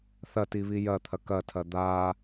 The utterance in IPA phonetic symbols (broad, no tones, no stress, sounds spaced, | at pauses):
θ ɐ t i β i j ɐ t̪ʰ ɐ k ɐ tʰ ɐ d̪ a